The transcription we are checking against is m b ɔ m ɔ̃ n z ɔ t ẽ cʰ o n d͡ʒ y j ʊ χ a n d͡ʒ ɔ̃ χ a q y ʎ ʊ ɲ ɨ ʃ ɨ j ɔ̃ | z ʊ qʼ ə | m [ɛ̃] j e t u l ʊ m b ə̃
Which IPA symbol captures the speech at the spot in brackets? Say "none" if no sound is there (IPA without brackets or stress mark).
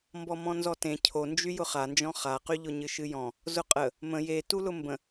ə̃